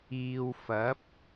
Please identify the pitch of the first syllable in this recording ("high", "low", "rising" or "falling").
low